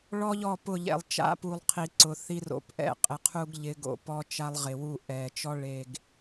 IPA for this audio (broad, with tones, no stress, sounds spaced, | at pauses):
ɭ ɔ˦ ʎ ɔ˦˨ p ʊ˦˨ ʎ ɛ̰˨ lˠ t͡ʃ a̰˦ p u˨ lˠ qʰ i˨ ǀ ʊ˨ θ i˦ r o̰˨ p ʔ ɛ̰˦˨ qʼ ɪ˨ qʰ u˦ ɡ ʎ ɪ˨˦ ɡ o̰˨ p ɔ˦ t͡ʃ a˦ lˠ ʁ ɪ˨ w u˦˨ ʔ ɛ˨ t͡ʃ ɔ˦ ɭ e˨ ɡ